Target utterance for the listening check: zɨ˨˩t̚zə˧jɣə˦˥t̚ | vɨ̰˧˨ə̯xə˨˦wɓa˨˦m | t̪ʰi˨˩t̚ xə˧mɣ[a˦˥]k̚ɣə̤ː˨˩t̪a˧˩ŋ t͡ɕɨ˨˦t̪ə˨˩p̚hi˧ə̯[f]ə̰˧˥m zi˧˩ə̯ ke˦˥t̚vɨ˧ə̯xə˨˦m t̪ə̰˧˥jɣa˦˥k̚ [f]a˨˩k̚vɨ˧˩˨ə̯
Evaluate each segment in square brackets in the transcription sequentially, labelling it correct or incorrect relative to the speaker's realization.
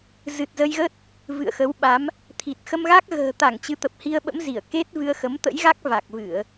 correct, incorrect, incorrect

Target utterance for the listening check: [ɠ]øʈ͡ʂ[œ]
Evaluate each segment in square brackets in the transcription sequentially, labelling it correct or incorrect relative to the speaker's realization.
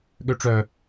correct, correct

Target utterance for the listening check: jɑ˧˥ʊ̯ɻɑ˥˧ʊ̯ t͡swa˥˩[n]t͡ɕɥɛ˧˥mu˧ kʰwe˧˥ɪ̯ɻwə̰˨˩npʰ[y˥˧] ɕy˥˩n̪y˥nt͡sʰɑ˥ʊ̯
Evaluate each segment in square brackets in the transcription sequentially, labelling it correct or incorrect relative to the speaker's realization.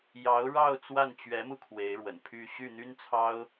correct, correct

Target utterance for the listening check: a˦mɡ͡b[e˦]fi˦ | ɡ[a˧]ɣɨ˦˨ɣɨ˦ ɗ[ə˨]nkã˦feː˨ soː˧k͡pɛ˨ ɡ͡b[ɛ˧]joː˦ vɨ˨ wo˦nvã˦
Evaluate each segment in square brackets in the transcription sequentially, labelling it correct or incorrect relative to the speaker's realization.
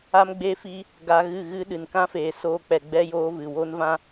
correct, correct, incorrect, incorrect

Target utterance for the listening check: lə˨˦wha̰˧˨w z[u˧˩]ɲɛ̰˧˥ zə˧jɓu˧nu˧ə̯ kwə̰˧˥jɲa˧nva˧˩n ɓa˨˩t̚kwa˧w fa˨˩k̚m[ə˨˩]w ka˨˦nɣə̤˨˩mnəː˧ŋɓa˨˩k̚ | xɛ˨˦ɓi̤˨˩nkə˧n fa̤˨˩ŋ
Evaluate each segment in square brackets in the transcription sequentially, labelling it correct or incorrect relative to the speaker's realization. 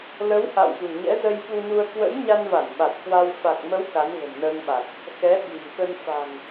incorrect, incorrect

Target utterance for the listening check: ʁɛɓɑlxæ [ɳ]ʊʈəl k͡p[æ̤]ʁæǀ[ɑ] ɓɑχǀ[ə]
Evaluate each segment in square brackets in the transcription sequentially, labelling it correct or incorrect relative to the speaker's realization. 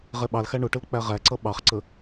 correct, incorrect, incorrect, correct

